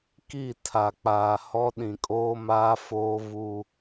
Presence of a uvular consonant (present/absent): absent